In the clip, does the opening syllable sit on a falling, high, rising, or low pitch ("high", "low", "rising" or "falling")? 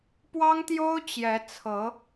high